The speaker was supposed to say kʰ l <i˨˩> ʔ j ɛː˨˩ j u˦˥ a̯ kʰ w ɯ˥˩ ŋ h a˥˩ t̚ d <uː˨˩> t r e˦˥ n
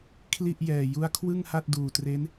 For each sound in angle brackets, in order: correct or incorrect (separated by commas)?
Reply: incorrect, correct